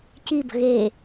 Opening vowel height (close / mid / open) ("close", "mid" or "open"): close